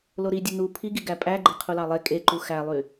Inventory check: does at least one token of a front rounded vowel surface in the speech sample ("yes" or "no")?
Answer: yes